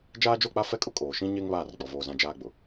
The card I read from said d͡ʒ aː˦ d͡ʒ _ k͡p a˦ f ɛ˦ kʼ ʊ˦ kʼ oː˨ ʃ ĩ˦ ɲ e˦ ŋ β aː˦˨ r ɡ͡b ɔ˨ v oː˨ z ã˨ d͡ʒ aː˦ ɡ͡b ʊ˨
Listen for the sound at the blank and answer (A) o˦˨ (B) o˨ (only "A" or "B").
A